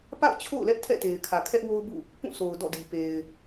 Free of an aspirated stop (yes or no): no